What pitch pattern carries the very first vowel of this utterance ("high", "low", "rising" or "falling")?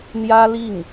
high